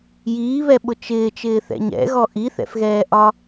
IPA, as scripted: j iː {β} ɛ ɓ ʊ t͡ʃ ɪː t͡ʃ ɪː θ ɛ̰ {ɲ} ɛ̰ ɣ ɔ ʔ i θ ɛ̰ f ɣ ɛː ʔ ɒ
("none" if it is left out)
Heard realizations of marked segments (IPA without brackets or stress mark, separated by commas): β, ɲ